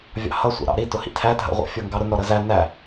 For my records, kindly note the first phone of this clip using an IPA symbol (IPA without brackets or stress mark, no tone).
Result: vʲ